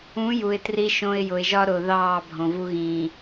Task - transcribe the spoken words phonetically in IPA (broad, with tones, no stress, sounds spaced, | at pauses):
ũ˨˦ j u˨ ɪ̯ t r i˦ ʃ õ˦ ɪ̯ j ʊ˨ ɪ̯ ʒ ɒ˦ ɾ ʊː˨ ð ɑː˦˨ bʱ õ˨ v u˦ ɣ ĩː˨